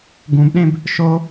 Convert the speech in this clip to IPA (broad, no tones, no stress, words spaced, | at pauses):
ɡũbɗẽb | ʃo